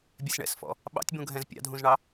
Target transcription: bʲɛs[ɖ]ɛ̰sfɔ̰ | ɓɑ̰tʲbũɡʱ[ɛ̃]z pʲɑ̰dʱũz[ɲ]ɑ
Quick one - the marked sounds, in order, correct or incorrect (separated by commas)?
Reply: incorrect, correct, incorrect